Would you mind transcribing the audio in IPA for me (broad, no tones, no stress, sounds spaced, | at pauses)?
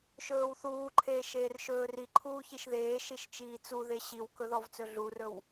ʃ ɵː w θ uː ǃʰ eː ʃ eː r ʃ ɵː r i ǃʰ uː ç i ʃ ð eː ʃ i ʃ t͡ʃ iː t͡s u ð e ɕ i w k ɵ ð ɔ v t͡s ɵ ɮ u r ɵ w